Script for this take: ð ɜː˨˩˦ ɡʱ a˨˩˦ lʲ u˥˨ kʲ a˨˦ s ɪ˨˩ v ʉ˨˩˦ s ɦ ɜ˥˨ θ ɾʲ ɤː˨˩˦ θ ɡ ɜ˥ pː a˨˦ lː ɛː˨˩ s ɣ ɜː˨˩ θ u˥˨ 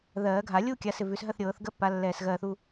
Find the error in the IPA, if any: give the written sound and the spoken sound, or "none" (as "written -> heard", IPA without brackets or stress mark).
none